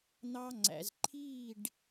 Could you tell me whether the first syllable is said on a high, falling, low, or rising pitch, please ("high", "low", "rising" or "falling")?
high